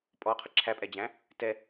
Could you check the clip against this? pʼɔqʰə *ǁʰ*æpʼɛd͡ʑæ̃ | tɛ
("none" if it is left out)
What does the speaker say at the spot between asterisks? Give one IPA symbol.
ǁʰ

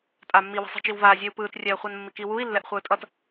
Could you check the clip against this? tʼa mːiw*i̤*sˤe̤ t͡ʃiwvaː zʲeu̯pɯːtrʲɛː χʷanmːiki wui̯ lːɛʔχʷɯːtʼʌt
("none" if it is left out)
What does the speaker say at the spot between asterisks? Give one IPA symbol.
i̤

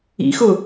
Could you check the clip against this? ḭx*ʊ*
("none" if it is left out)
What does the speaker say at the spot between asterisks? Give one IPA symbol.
ʊ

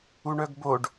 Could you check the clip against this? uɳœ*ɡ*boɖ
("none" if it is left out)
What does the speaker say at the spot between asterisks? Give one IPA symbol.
ɡ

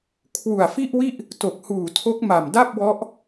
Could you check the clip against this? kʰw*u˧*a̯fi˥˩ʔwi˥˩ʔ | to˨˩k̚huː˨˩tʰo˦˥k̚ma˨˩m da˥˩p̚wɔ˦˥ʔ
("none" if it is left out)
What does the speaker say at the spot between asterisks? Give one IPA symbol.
u˨˩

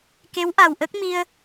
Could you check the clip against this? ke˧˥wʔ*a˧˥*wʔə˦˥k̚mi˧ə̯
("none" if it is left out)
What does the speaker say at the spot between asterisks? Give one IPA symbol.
a˨˩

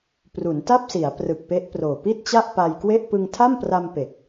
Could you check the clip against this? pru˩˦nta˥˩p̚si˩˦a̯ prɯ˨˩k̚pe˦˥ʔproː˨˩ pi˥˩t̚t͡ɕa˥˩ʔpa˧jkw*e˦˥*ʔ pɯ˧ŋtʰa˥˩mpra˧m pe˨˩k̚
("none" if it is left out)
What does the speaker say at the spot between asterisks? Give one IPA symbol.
e˥˩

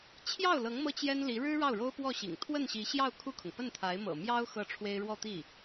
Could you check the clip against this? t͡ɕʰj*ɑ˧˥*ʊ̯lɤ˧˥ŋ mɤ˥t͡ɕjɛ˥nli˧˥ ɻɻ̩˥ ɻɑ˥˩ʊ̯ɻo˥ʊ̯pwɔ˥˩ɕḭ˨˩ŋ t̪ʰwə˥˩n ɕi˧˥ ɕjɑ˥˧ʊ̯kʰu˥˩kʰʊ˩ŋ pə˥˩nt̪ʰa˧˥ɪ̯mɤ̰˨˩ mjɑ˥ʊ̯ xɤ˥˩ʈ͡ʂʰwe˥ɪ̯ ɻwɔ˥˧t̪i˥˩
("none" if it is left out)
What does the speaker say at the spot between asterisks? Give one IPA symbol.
ɑ˥˩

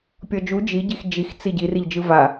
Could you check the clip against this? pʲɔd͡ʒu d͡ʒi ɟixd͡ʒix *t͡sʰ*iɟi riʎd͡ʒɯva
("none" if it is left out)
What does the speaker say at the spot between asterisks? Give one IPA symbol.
t͡s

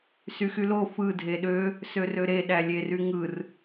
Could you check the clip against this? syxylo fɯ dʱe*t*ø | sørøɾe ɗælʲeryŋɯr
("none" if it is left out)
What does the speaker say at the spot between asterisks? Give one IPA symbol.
ɗ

